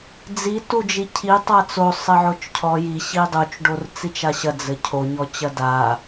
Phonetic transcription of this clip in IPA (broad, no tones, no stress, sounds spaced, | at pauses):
d͡z i t u d͡ʒ i cʰ i tˤ a t͡s o sˤ ɘ ʕ o t͡ʃ cʰ ɔ j i ɕ i dˤ u t͡ʃ ɖ o r t͡s i t͡ʃ a ɕ ɐ d͡z ɘ cʰ o ɲ ɔ t͡ɕ ɐ d a